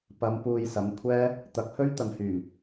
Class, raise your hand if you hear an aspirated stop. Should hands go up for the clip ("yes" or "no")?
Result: yes